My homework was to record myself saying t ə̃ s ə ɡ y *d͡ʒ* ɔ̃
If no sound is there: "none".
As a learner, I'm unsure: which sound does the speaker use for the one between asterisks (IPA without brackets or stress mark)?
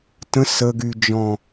d͡ʒ